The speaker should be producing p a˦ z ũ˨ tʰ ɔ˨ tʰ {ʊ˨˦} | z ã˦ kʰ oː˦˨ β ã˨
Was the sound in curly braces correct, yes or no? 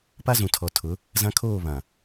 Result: yes